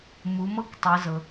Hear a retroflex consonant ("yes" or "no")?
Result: no